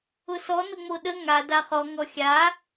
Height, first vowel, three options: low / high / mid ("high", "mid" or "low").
high